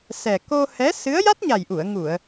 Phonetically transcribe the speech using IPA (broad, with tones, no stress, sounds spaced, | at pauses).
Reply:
s ɛ˨˩ k o˧ h ɛ˧˥ s ɨ˧˥ ə̯ j a˦˥ t̚ ɲ a˨˩ j ʔ u˨˩˨ ə̯ ŋ u˨˩˨ ə̯